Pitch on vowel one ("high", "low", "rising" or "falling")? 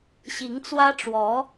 rising